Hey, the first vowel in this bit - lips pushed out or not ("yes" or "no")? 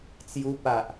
yes